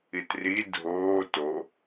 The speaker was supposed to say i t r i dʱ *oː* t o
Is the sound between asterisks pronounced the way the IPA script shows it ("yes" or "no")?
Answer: yes